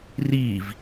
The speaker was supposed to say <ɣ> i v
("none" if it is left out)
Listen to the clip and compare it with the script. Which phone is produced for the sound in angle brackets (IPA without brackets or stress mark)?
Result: r